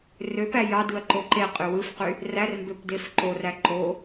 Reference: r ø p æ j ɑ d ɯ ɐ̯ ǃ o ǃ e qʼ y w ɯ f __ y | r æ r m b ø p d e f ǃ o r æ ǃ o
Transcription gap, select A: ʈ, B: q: B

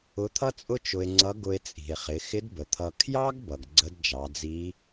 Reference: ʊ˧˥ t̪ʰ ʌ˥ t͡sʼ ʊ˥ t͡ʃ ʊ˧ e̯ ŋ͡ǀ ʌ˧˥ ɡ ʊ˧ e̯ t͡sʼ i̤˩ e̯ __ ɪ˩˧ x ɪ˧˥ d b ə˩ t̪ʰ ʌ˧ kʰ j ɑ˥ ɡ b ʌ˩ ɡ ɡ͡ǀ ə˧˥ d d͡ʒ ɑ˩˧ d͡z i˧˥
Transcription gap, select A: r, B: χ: B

